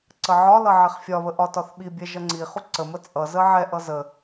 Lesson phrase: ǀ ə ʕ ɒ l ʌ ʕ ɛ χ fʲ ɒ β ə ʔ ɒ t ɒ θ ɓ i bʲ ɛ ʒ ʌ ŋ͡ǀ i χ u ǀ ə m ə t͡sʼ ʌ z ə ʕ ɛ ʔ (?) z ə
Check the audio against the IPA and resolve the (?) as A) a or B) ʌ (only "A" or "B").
B